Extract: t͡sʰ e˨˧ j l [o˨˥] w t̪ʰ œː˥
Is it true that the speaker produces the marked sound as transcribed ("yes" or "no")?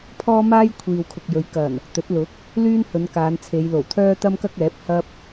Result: no